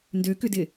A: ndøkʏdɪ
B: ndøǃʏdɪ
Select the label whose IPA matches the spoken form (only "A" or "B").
A